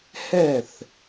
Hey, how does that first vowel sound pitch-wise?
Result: falling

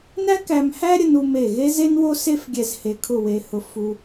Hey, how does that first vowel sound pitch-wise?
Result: high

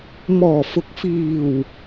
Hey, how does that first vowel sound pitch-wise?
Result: low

